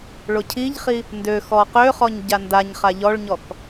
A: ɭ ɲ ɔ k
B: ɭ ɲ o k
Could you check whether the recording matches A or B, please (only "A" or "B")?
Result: A